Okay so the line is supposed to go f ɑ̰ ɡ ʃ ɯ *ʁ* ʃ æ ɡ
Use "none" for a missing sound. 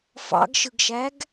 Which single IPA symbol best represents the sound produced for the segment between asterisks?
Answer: ɡ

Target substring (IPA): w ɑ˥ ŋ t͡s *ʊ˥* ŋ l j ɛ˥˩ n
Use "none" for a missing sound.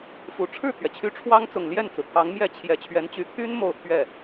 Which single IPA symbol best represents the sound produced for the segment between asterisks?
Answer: ʊ˨˩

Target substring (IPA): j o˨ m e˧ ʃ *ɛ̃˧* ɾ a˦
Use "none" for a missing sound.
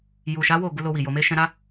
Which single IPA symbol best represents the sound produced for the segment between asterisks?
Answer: ɛ̃˧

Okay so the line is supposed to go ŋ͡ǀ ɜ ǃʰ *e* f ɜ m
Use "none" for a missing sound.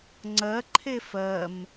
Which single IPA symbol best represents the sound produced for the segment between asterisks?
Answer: e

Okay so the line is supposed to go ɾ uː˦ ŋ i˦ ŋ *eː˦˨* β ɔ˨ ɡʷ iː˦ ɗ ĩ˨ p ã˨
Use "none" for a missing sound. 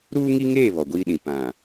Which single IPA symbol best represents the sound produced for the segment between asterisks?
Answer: eː˦˨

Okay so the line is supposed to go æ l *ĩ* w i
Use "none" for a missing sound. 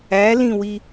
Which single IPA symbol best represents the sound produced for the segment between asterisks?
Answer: ĩ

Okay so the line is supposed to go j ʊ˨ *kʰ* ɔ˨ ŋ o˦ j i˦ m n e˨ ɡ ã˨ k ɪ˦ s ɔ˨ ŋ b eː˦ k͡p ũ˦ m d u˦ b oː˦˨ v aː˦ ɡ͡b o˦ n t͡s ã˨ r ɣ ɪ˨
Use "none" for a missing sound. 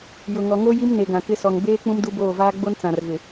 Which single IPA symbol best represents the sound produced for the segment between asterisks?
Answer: ŋ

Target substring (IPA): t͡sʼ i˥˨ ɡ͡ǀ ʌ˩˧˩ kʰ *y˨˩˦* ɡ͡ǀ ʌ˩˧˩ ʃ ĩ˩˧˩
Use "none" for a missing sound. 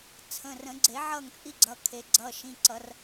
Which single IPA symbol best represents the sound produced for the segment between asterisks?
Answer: e˨˩˦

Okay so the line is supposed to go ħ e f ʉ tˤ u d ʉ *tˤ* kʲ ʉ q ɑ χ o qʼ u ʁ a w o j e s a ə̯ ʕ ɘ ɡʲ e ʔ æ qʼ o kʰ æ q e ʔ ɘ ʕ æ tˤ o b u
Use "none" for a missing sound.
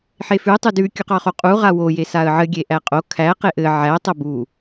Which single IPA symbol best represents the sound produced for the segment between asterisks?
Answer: none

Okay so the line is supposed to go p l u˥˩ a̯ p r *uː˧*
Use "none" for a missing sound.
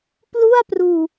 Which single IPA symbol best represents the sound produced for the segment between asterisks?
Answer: uː˧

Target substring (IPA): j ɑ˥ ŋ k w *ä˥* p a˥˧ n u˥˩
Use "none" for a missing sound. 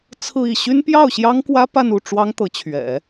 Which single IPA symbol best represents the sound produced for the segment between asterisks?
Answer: ä˥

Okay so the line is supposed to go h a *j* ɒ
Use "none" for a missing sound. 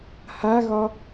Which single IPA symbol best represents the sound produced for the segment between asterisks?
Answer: ɣ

